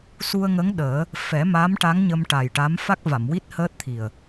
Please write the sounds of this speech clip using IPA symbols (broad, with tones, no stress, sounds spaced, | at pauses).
s u˧ ə̯ ŋ ə˧˥ ŋ ɗ əː˨˩˦ | f ɛ˨˩˦ m a˧˥ m ʈ a˧˥ ŋ ɲ ə˧ m ʈ a˨˩ j ʈ a˧˥ m f a˦˥ k̚ v a˨˩˨ m w i˦˥ t̚ h əː˦˥ t̚ t̪ʰ i˨˩ ə̯